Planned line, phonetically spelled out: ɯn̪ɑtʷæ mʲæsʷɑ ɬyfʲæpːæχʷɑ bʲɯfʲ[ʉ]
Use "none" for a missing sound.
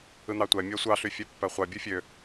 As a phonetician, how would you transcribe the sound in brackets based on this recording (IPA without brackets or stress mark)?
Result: ø